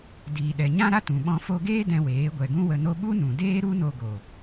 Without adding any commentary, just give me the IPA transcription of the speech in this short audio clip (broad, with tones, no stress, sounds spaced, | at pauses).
d iː˨ ɗ ɛ˨ ɲ ã˦ ɾ a˦ t ũ˨ ɓ ɔ̃˧ f o˧ ɡ eː˦ d ɛ̃˧ w eː˨˦ ɡʷ ɛ˨ ɡ ũ˦ w ə˧ n o˦ ɓ u˦ n ũ˨ d eː˦ ɾ u˦ n o˧ ɡ o˨